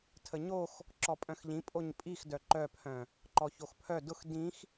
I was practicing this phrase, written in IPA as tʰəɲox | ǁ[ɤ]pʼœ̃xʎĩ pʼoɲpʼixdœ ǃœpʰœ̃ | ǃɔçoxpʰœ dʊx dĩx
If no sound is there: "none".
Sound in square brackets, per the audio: ɔ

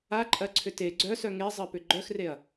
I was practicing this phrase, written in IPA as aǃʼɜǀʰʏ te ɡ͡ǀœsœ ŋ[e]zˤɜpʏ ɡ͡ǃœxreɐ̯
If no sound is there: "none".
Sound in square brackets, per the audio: e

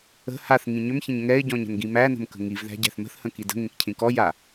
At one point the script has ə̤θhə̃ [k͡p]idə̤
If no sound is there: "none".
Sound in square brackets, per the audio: k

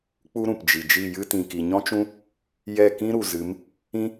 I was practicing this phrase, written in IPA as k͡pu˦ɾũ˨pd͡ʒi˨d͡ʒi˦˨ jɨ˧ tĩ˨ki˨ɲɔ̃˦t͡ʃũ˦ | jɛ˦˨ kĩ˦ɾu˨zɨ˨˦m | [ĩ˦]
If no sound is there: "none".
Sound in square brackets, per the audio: ĩ˦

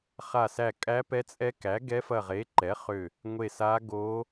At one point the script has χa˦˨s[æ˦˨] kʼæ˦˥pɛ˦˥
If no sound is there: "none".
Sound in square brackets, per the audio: æ˦˨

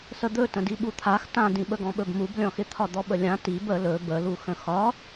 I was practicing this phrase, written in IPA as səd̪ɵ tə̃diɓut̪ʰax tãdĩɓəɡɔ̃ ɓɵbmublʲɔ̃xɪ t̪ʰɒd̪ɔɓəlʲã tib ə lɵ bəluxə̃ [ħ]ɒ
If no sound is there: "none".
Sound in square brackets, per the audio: x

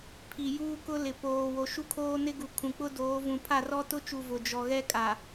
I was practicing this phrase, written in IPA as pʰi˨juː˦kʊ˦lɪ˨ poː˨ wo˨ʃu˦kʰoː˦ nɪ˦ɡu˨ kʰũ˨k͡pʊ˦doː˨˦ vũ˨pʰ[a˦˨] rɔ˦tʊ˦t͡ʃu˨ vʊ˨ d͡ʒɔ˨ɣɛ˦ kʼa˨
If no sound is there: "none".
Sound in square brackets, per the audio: a˦˨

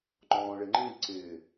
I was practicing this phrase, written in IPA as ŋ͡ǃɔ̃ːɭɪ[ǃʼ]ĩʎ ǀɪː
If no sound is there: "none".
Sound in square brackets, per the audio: ŋ͡ǃ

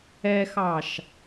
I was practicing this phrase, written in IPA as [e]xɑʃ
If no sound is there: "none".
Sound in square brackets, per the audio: ɛ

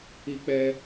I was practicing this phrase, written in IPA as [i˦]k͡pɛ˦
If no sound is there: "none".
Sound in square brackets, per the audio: i˦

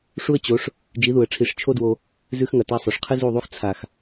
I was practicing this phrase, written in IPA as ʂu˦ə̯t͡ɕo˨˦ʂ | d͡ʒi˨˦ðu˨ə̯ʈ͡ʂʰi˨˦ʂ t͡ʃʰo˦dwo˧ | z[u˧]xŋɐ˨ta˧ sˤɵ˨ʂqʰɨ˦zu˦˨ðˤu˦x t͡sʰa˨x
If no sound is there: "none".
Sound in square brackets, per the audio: ʉ˧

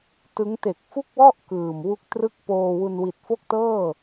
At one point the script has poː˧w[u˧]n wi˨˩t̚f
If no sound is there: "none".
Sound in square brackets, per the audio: u˧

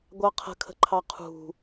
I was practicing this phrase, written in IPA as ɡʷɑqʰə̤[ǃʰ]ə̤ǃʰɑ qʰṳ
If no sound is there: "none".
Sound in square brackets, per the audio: kʰ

